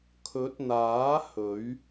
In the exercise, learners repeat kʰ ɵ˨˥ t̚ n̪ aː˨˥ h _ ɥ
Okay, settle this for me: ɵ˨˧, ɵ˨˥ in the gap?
ɵ˨˥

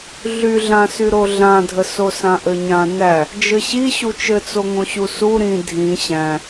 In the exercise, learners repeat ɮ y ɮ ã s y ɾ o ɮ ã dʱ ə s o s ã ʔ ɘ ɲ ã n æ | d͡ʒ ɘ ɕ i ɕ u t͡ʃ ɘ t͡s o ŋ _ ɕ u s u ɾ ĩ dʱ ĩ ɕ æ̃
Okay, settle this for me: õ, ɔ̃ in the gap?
õ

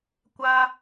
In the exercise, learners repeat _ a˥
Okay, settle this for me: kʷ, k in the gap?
kʷ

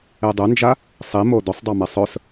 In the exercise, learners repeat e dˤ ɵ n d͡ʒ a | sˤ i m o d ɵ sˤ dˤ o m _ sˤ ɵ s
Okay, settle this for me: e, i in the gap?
e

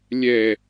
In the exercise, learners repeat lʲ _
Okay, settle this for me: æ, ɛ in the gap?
ɛ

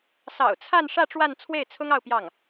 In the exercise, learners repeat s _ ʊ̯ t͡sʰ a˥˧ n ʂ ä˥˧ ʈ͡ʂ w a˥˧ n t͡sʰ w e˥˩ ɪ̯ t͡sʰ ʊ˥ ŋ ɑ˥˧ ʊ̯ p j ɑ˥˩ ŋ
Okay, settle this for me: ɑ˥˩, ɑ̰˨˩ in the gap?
ɑ̰˨˩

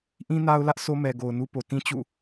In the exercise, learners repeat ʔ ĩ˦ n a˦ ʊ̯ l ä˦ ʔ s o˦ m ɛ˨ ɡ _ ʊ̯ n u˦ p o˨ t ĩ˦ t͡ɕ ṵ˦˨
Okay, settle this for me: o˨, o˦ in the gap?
o˨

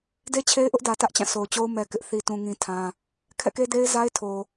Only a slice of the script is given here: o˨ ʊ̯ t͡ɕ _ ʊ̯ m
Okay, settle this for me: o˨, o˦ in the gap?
o˦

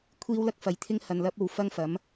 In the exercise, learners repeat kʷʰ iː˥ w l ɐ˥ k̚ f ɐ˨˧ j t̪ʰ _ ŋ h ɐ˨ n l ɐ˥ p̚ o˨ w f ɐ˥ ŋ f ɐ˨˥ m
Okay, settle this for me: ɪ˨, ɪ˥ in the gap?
ɪ˥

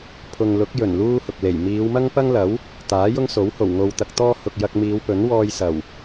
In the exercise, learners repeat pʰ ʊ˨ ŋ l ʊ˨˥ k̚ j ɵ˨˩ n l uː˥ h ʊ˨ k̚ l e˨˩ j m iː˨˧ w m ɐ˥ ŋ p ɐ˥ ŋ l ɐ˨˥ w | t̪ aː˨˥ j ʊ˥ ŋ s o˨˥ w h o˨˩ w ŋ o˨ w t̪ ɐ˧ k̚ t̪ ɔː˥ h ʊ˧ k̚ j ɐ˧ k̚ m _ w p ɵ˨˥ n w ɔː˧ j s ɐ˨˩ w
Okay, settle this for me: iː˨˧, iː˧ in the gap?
iː˨˧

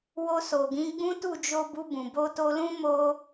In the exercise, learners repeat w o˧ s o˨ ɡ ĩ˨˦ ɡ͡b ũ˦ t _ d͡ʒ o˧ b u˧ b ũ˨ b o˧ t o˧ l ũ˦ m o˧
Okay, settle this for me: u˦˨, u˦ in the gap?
u˦˨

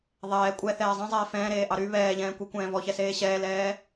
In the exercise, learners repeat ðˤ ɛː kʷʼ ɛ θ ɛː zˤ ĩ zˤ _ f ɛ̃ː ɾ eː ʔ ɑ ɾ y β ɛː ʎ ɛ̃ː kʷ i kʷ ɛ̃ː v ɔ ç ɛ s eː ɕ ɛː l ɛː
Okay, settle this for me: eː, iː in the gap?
eː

